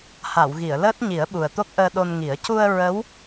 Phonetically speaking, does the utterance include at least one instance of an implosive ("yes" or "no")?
yes